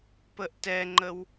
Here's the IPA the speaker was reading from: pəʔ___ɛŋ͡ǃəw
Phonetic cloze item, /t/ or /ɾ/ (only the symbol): t